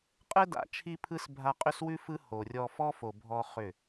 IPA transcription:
qʼɘ˦ da̰˨˦ t͡ʃʰi˦pʰɯ˦s bʱa˧qʼʏ˦swʉ˦ fɯ˦ ho˨rʲɔ˧ fɔ˦fo˨ bʱɔ˦χʏ˦˨

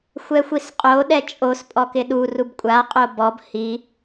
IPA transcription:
xʷɛxʷisqʼo ɗɛt͡ʃʼos pʼɔkɪɗu rubkʷʼa qʼobɔb hi

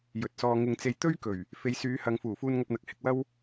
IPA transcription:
jɵ˨t̚sɔː˧ ŋɪ˧ŋt͡se˧j t̪ɵ˥ɥkɵ˨˩ɥ | fe˨˧jsyː˨˧hɐ˨ŋfuː˨˩ fuː˧nŋɐ˧p̚n̪ɐ˨k̚ hɪ˧k̚wɐ˥w

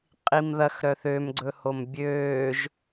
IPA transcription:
qʼimðɐx ɾœθømɡ͡ǀɵhom bʲøːʒ

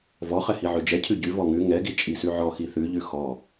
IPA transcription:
vɔχɛhi ʕʉd͡ʒɛcʰʉ ɟʉ vɔŋʉ ŋɛɡi t͡ʃʼisʉʕɔ xiθʉʎʉ xɔ

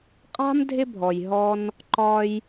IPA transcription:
qʼa̤˥m dʱɪ˥bʱɔ˩j ɦɔ˧n | ǃɒ˧j

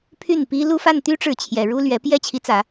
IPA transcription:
pʰy˥˩n pi˥ lu˥˧fa˥˩nt̪y˥ ʈ͡ʂɻ̩˥˩t͡ɕʰjɛ˨˩ ɻu˥lɥɛ˧˥ pjɛ˥˩t͡ɕʰi˧˥t͡sä˨˩˦

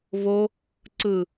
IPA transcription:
βo | ǀɯ

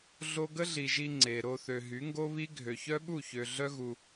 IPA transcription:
ɮo˦ ɡə˦ɮi˨ʒi˧ ŋ͡ǀe˨ ɾo˧θø˨ ɦy˨˦ŋɡo˦βi˦ ɡʱø˨çœ˦ɓu˦˨ çø˨ ɮœ˦ɣu˧

